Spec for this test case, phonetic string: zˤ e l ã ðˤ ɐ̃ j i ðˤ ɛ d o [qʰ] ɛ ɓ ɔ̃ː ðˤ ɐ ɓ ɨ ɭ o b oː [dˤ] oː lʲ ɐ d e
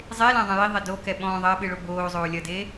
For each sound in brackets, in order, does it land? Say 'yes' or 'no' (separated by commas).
no, no